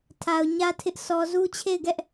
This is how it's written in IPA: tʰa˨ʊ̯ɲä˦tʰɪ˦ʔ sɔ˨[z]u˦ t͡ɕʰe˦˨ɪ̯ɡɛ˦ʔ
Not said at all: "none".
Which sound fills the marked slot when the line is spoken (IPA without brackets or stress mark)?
z